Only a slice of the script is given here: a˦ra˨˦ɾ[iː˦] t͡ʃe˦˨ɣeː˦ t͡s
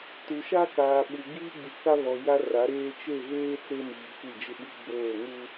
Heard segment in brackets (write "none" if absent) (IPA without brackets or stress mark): eː˦